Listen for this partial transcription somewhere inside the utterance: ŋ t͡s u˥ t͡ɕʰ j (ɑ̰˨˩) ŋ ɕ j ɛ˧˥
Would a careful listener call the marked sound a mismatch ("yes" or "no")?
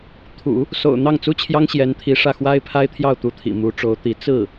yes